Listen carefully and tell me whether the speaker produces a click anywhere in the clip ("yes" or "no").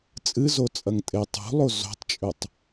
no